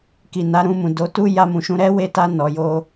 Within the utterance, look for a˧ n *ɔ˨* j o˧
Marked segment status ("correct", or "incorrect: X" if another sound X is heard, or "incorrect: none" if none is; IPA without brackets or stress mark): correct